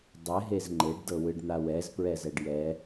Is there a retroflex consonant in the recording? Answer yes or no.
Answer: yes